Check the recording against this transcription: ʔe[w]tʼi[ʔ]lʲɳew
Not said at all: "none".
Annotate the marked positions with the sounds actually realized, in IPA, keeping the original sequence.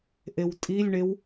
w, none

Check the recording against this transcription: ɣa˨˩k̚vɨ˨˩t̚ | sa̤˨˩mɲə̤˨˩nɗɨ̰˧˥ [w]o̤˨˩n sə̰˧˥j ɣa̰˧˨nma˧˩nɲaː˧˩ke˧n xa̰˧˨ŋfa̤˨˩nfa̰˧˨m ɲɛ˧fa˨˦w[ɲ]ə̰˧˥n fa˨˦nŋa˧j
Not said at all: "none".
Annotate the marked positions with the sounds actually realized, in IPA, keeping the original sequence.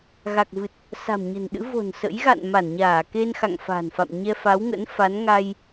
v, ŋ

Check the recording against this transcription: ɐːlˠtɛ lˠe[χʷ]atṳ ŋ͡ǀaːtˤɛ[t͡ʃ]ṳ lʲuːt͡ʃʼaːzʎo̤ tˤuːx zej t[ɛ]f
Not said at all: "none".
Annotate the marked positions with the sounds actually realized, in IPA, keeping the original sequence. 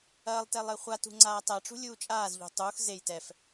χʷ, ʈ͡ʂ, ɛ

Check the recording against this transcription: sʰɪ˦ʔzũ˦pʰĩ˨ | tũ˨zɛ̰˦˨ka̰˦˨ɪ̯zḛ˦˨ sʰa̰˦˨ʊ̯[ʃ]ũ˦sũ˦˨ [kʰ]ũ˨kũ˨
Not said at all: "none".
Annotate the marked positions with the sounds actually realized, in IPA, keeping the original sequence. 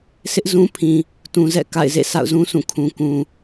z, kʰ

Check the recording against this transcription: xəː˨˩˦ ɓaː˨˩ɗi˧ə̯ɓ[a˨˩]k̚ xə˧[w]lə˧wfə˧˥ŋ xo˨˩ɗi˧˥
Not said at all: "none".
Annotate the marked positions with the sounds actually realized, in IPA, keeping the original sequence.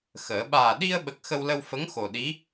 ə˨˩, w

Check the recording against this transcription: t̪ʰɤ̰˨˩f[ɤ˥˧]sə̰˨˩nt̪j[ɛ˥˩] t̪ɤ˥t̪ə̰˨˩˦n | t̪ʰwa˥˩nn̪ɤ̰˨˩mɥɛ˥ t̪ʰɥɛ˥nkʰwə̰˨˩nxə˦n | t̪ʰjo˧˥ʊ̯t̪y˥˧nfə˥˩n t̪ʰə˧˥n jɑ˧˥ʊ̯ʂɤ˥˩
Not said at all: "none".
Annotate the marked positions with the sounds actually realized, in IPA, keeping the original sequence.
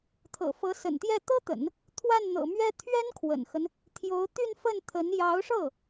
ɤ˧˥, ɛ˥˩

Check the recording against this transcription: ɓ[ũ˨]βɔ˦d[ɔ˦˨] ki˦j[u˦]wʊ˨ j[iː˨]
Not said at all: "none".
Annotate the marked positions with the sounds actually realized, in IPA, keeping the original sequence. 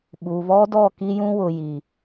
u˨, ɔ˦˨, ũ˦, i˨

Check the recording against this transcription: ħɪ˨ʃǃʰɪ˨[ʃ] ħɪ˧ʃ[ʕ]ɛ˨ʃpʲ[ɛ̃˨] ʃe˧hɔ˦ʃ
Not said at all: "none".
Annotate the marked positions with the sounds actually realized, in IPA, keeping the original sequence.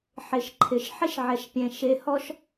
ʃ, ʕ, ɛ̃˨

